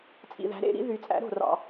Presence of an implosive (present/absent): absent